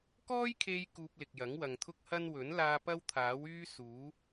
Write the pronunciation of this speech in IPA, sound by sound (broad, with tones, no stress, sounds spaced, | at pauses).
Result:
k ɔː˥ j kʰ e˧ j k uː˧ p̚ l ɪ˨ k̚ j ɐ˨˥ ŋ w ɐ˨ ŋ t̪ʰ ʊ˥ k̚ h ɐ˥ n w ɵ˨˥ n l aː˧ p ɐ˥ w t̪ʰ aː˨˥ w yː˥ s uː˨˥